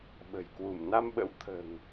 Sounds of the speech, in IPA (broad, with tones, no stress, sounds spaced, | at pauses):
ɓ ə̤˨˩ j k w u˧˩ m n a˧ m ɓ ə̰˧˥ w t̪ʰ ə̤ː˨˩ ŋ